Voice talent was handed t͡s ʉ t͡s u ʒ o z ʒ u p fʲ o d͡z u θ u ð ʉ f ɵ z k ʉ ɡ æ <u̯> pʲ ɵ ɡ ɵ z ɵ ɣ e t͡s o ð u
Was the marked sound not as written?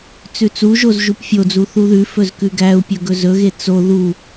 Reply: no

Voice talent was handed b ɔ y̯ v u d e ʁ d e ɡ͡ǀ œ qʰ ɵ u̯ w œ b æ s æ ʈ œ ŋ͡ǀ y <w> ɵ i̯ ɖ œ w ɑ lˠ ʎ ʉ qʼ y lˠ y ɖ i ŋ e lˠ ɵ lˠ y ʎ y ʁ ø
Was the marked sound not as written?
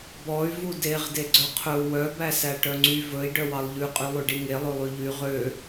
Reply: yes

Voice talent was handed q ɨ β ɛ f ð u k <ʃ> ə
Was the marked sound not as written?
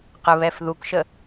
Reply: no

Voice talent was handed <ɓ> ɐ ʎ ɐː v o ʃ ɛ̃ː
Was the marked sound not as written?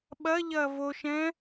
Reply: no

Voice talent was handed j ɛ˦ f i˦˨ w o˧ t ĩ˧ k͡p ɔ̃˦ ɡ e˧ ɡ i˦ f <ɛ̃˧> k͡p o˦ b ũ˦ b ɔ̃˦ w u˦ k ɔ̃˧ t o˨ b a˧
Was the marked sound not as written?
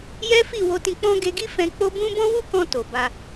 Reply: no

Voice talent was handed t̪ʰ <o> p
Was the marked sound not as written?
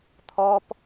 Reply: yes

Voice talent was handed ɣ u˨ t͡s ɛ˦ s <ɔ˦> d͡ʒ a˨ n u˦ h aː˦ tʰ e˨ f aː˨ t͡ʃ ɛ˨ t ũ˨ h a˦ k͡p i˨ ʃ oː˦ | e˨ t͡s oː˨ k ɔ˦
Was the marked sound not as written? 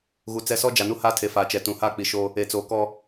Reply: no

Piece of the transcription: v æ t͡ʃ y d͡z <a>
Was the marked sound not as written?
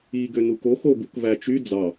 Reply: yes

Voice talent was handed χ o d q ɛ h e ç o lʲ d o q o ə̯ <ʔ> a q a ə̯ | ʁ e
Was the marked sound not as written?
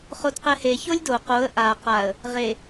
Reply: no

